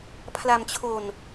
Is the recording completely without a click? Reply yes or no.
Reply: yes